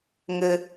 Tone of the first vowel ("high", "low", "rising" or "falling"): low